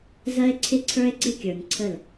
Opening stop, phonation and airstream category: click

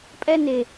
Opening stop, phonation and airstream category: ejective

